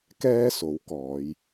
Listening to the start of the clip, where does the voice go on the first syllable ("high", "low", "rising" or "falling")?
high